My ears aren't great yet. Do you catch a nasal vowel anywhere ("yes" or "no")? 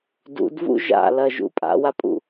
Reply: no